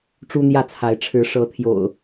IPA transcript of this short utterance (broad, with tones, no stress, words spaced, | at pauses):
ʈ͡ʂu˦n̪jä˥˨t͡sʰa˨˦ɪ̯ ʈ͡ʂʰɻ̩˨˦ʂɤ˨˦t̪ʰjo̰˨˩ʊ̯